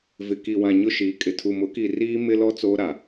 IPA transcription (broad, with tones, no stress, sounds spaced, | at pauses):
v ɪ˨ k i˨ w ã˨ ɲ ʊ˦ ʃ iː˨˦ kʼ ɪ˨ tʰ u˨ m ʊ˨˦ k i˨ r iː˦ m ɪ˦ l ɔ˦ t͡s oː˦ ɾ a˨